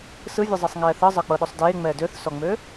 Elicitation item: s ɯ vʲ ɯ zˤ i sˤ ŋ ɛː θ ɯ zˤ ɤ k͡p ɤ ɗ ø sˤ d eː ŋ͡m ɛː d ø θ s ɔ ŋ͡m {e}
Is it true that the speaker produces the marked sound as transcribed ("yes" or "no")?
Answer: no